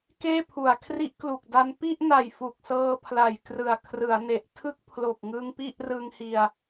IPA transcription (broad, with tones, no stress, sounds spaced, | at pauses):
k eː˥˩ pʰ u˨˩ a̯ kʰ r i˦˥ ʔ k l u˨˩ k̚ d a˧ n p i˥˩ ʔ n a˨˩ j f u˨˩ k̚ s ɤː˧ pʰ l a˨˩ j k r ɯ˨˩ a̯ kʰ r ɯ˩˦ a̯ n e˨˩ ʔ tʰ ɯ˦˥ k̚ pʰ l o˨˩ k̚ ŋ ɯ˧ ŋ p i˥˩ ʔ r ɯ˧ ŋ h i˧ a̯